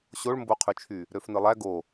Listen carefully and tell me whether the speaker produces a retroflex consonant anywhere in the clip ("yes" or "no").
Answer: yes